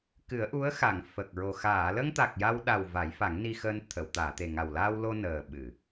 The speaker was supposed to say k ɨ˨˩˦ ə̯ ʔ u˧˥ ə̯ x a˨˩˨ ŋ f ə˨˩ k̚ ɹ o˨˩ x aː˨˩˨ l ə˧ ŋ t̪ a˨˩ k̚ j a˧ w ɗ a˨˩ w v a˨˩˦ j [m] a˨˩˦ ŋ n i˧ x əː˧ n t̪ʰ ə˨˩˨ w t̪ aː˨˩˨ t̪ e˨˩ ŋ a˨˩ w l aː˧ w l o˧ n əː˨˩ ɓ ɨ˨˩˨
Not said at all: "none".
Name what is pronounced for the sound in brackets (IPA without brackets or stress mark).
f